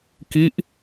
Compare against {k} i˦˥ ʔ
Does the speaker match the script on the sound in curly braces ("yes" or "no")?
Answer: yes